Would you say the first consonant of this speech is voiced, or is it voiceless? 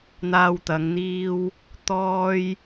voiced